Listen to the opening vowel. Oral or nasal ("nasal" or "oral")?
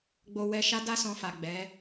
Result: oral